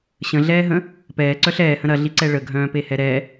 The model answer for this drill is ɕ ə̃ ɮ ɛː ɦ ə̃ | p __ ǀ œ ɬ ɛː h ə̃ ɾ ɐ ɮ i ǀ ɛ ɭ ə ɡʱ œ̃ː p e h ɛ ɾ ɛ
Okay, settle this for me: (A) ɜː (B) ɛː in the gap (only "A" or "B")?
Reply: B